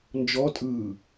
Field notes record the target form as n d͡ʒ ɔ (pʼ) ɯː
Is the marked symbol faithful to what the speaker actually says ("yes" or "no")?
no